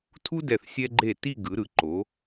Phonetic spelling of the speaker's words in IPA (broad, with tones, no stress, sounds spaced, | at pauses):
tʰ u˥ d ɛ˧˩ θ sʲ ɛ˧ ɡ͡ǃ e˧˩ t i˥˧ ɡ ɯ˩˧ ɾ ɯ˩˧ ǃ o˩˧